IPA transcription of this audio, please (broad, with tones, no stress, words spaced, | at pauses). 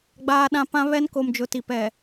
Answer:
ɡ͡baː˦ɗã˦ pã˦βɛ˦n ko˨md͡ʒʊ˨ ti˨ pɛ˨